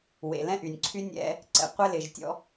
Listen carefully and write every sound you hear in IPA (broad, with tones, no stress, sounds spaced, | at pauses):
w ḛ˨ l ɛ̃˦ ʔ y˨ nʲ ǀʰ y˦ nʲ ɛ̰˦ | ǀ ɛ̰˨ qʷ ɛ˦ l ɪ˨ ʒ tʲ ɔ̰˦